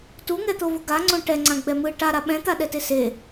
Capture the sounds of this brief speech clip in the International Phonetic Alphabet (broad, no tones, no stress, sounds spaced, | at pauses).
t u ŋ ɛ t̪ o v u ɡ a ŋ͡ǀ õ ʈ ɛ ŋ͡ǀ ã ɡ͡b ɛ m ɯ ʈ a ɾ a ɓ ɛ̃ t̪ a ɗ ɛ t e s e